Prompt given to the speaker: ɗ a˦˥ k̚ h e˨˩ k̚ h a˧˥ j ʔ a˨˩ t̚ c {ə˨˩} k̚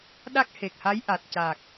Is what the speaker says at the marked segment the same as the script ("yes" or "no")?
no